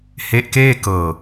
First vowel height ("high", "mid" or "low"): mid